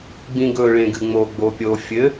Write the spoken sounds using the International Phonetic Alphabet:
ɡ͡b ĩ ɡ ɵ ɭ ẽ ɡ ɨ ŋ͡m o ɡ͡b o pʲ o fʲ ɘ

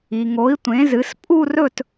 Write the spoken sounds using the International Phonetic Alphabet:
i˨ ŋ o˨˥ i̯ tʷ ẽ˨˥ z ɨ˨˥ s pʼ u˥˧ r ɵ˥˧ t

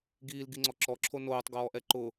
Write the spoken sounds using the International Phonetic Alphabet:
ɡ iː l ɡ i ŋ͡ǀ ɔ ǁ ɔ ǁʰ o n oː tˤ ɡ ɔː ʔ ɛ ǃ ʊ

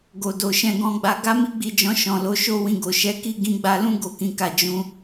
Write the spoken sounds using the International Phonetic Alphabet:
ɡ o˨ d o˨ ʃ ɛ̃˧ ɡ ɔ̃˧ ɡ͡b a˧ ɡ a˦ m i˦ ɡ͡b i˦˨ d͡ʒ ɔ̃˧ ʃ ɔ̃˨ l o˨˦ ʃ o˦ w ĩ˧ ɡ o˨ ʃ ɛ˨˦ k i˦ ɡ ĩ˧ ɡ͡b a˧ l ũ˦ ɡ o˦˨ k ĩ˨˦ k a˦˨ d͡ʒ ũ˧

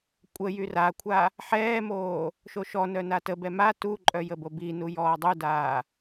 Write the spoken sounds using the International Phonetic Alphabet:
kʷʼ ə j y r a kʷʰ a | ħ ɛː m oː | ʃ o ʃ ɔ n œ n a t ə b ɛ m a t u ǃʼ œ j ə b o b i n u j ɔː dˤ u d aː

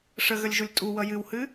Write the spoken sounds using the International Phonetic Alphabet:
ʂ ə ɣ ə lʲ ʒ u lʲ tʼ u w ʌ j ɨ w h ɨ

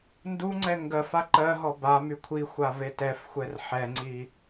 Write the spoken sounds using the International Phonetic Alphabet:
n d u ŋ͡ǀ ɛ ŋ ɡ ɜ f a ǃ ɜ ɦ ɔ b a m y kʷʰ i xʷ a v e t ɛ f xʷ ɛ r ħ ɛ ŋ͡ǀ i

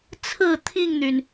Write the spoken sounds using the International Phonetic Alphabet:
t͡sʰ ɹ̩˨˩ t̪ʰ i˥˨ ŋ n̪ y˩ n

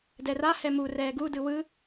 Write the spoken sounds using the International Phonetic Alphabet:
d ɛ r a h ɛ m u r ɛː ɡ u d ɯ w ɯ

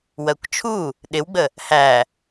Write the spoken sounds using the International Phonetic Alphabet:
w ɜ kʷ t͡ʃʰ u | ɗ ɪ w ɡ͡b ə | h æ

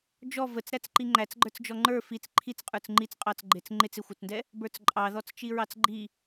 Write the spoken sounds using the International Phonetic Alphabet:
d͡ʒ ɔ v ə t͡s ɾ æ t͡s ǃ i ŋ͡ǃ æ t͡s ɡ͡ǃ ə˞ t͡s d͡ʒ ɔ ŋ͡ǃ ə˞ f i t͡s ǃʰ i t͡s qʼ ə˞ t͡s ŋ͡ǃ i t͡s qʼ ɑ t͡s ɡ͡ǃ ɪ t͡s ŋ͡ǃ ɪ t͡s ɪ xʷ ə˞ t͡s n d ɛ | b ə˞ t͡s ǃʼ ɑ ð ɔ t͡s t͡ʃ i ɹ ɑ t͡s ɡ͡ǃ i

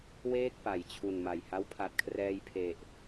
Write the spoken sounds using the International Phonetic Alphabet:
w eː˥˩ k̚ p a˩˦ j t͡ɕʰ u˨˩ n m a˨˩ j h a˦˥ w pʰ a˨˩ t̚ kʰ r ɛː˧ j pʰ e˨˩ ʔ

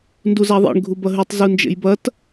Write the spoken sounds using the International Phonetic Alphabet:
n d u z a ðˤ ḛ ɳ ɡʱ u b ɐ ɦ ʉ tˤ z u n d͡ʒ ḛ j b ɐ t

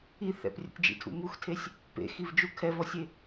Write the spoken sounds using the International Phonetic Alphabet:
i θ ɛ̰ p rʲ ṵ tʲ d͡ʒ ḭ tʰ ṵ m u x tʰ e sʲ | p ḛ x i v d͡ʒ u kʰ ɛ v ɔ sʲ e

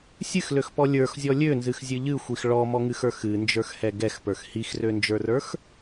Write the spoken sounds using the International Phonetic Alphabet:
sʲ ɨ x l ø x p ɔ lʲ ə˞ x zʲ ɔ lʲ ø n z ɨ x zʲ ɨ ʎ ɨ xʷ i x ɭ ɔ m ɔ ŋ ɨ x ə˞ x ɨ n d͡ʒ ə˞ x h ɛ ɡ ɛ x p ə˞ x h i x r ø n d͡ʒ ə˞ r ə˞ x

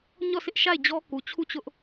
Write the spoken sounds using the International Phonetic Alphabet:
ɲ ɔ˦˨ s ɪ˦ ʔ ʃ a˦˨ ɪ̯ d͡ʑ ɔ˦ k u˨ t͡ɕʰ u˦˨ t͡ɕ ʊ˦ ʔ

